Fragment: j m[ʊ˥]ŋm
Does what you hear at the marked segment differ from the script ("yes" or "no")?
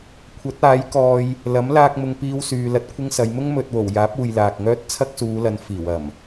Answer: no